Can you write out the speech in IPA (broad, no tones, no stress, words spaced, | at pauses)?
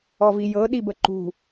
ɔvijɤ ɗibəǃṳ